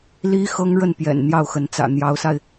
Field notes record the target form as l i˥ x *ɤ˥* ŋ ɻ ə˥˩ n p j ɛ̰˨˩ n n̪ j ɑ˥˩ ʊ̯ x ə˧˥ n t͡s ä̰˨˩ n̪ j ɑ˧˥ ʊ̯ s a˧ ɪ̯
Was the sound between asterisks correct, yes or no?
yes